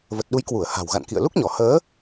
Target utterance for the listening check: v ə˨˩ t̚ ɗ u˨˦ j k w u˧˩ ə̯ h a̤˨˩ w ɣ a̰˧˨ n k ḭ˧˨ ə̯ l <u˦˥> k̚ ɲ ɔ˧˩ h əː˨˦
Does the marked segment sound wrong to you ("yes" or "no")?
no